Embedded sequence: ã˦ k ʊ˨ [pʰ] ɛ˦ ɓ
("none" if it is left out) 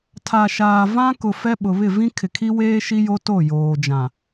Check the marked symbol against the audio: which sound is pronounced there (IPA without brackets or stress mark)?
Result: f